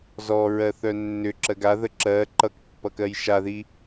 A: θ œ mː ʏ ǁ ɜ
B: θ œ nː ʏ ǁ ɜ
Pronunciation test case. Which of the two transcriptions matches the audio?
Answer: B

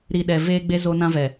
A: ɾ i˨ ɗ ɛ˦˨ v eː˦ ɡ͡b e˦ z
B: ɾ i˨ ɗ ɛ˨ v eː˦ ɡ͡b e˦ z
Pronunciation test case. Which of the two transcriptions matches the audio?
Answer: B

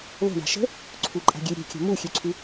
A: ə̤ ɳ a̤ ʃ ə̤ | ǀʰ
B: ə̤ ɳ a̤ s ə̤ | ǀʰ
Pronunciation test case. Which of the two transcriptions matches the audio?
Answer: A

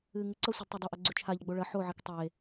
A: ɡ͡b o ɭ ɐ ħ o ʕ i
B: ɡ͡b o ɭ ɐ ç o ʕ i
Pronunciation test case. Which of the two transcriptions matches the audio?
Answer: A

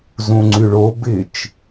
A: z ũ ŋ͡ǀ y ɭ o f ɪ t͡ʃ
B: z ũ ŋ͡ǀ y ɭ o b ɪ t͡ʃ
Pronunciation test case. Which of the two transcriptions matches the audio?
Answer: B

